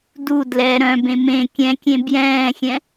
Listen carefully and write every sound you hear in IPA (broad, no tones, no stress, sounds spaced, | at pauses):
d u d l ɛ ɾ œ̃ b ẽ m ẽ kʲ ɛ̃ kʲ ẽ b j ɛ̃ː xʲ ɛ̃